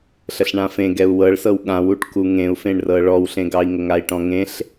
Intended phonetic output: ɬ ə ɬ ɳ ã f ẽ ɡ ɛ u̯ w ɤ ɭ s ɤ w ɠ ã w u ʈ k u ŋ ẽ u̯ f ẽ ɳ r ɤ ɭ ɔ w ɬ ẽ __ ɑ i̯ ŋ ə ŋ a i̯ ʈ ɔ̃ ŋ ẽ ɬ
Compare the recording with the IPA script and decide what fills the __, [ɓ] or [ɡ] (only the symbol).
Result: ɡ